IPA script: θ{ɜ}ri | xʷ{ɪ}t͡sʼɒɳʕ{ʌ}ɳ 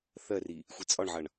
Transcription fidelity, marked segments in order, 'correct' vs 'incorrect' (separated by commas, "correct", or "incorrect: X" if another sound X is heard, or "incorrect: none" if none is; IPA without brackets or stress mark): correct, incorrect: i, correct